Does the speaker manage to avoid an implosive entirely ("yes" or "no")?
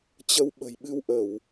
no